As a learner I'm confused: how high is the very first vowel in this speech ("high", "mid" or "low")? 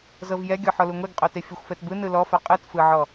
mid